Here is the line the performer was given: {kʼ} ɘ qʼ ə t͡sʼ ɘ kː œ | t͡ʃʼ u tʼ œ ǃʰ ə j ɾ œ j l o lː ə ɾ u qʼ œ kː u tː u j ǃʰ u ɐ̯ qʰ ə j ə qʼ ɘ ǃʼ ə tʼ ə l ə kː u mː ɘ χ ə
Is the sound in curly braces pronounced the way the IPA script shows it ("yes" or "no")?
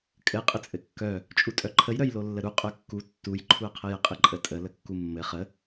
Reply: yes